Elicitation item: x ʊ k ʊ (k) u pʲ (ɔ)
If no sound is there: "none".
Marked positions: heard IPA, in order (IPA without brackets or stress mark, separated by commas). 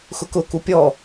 k, ɔ